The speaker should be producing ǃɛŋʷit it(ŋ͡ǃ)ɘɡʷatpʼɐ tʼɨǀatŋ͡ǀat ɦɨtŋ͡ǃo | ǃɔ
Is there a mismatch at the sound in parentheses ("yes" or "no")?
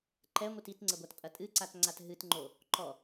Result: yes